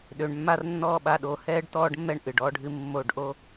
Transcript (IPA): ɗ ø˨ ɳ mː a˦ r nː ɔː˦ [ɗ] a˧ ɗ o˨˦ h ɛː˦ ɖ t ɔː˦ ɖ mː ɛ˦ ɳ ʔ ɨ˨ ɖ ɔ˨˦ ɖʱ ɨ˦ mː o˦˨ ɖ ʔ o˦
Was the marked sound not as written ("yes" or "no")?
yes